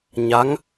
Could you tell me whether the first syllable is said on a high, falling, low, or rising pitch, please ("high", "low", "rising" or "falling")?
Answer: rising